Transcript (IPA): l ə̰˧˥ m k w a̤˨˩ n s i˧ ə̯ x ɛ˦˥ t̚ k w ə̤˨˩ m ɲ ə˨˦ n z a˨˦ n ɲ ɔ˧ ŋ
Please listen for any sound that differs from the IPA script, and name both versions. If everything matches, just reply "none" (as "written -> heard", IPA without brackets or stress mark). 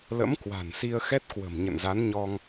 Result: ə˨˦ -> ə̰˧˨